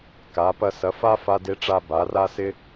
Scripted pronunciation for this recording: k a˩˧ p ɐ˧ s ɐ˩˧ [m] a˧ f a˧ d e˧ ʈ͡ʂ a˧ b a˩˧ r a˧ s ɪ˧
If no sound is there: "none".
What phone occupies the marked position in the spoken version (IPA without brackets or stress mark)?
f